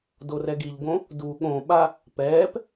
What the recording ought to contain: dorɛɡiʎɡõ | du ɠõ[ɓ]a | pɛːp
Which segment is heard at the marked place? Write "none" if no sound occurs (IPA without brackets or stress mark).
ɓ